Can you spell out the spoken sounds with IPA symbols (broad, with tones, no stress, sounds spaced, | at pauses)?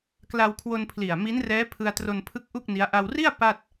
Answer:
k l a˧ w kʰ w o˧ n pʰ l i˨˩ a̯ m i˦˥ n r ɛː˦˥ pʰ ɯ˧ a̯ t r o˧ n pʰ ɯ˦˥ k̚ ʔ u˥˩ k̚ n i˦˥ a̯ ʔ a˧ w r i˥˩ a̯ p a˥˩ t̚